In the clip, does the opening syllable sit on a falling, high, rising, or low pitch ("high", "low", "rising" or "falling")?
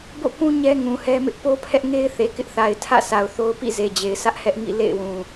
falling